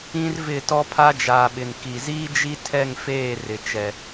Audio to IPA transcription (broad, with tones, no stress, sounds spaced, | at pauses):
ĩ˦ r v ɪ˦˨ t ɔ˦ pʰ a˦ d͡ʒ aː˨ ɓ ɪ˨ n k i˨ z iː˦ d͡ʒ i˦ tʰ ɛ˦˨ ŋ f eː˦˨ r ɪ˨ t͡ʃ ɛ˨